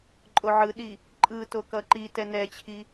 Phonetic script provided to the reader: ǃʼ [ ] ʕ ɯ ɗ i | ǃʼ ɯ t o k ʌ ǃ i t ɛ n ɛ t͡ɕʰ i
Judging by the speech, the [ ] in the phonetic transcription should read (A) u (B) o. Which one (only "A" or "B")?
B